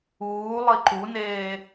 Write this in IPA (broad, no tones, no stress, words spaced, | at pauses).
uːlˠi ǃuneː